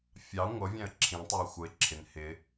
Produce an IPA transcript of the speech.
fʲ ɑ ŋʷ ʌ vʲ æ̃ ə̯ ǁʰ ĩ tˤ ə˞ ɪ̯ xʷ ʌ ɪ̯ ǁʰ ɪ n h ɪ

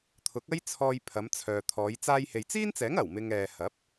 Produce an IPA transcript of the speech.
t̪ʰ ʊ˨˥ k̚ ɐ˥ j t͡sʰ ɔː˧ j pʰ ɐ˨˧ m t͡sʰ œː˨ t̪ʰ ɔː˨˧ j t͡s aː˧ j h e˨ j t͡s iː˥ n t͡s ɛː˨˥ ŋ ɐ˨˩ w m ɪ˧ ŋ ɛː˨ h ɐ˨˥ p̚

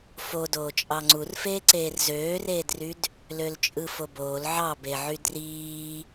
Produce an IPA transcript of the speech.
f o d oː t͡ʃʼ ɑ ŋ͡ǀ u r f eː ǀ eː r z øː r eː d r y d | l ø l t͡ʃʼ ɯ f o b oː l ʕ ɑ b e ʕ y d r iː

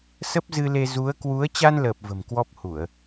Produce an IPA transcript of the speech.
s ə˦˥ p̚ z ɨ˧ l e˧ z u˨˦ ə̯ k w u˨˦ ə̯ t͡ɕ a˧ n l əː˨˩ p̚ v ə̤˨˩ m k w ɔ˦˥ p̚ h u˧˩˨ ə̯

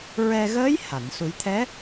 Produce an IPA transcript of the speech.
ɹ ɛ˧ ɣ əː˧˥ j h a˨˩˨ n s u˨˩˦ j t̪ʰ ɛ˧˥

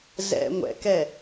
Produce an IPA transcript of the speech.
z ɛ̰ ŋʷ ɛ̰ k ɛ

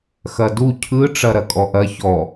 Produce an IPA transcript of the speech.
x ɐ d u cʰ ɯ ʈ͡ʂ ɐ ɾ ɐ kʼ ɔ ʔ ɐ ç ɔ

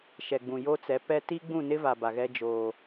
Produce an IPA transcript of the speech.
ʃ ɛ˨ ɡ͡b ũ˨ j o˦ t͡s ɛ˨˦ p ɛ˦ t i˦ ɡ͡b ũ˦˨ n ɪ˦ v a˨ b a˨ ɣ ɛ˦ d͡ʒ oː˨

